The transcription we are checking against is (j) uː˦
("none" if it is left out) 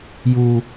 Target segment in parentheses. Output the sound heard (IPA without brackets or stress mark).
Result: j